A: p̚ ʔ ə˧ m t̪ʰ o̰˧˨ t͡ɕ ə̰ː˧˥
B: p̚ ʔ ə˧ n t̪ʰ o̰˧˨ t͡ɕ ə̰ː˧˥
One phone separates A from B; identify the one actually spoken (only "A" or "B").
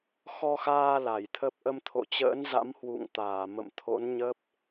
A